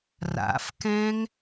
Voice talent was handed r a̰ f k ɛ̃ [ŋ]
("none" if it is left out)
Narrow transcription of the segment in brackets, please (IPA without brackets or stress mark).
ŋ